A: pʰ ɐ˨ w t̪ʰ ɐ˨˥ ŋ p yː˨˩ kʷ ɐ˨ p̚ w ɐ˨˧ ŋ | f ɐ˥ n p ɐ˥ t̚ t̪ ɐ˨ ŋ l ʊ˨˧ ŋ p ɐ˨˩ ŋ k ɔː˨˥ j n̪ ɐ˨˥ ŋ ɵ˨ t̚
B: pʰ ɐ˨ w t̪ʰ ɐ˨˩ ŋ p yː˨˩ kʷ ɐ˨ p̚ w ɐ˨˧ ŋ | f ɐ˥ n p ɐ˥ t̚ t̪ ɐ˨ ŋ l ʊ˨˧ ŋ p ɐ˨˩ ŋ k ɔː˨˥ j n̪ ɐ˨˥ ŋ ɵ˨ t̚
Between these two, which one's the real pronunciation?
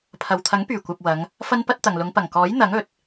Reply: A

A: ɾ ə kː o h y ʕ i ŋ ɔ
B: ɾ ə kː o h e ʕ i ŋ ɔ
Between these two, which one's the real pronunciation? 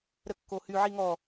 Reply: A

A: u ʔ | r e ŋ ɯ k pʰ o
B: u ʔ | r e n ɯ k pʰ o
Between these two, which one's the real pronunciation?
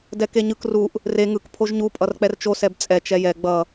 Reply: A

